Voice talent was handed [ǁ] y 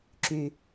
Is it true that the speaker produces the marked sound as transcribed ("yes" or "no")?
yes